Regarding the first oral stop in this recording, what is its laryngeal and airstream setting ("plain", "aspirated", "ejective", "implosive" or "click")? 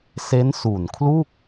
aspirated